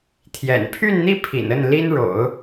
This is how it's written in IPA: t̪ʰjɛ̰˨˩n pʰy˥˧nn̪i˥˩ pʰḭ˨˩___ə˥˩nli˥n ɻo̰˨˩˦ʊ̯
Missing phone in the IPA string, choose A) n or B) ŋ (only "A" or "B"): A